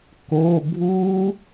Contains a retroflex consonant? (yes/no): no